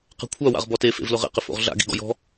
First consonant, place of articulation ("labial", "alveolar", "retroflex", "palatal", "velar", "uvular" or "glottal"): uvular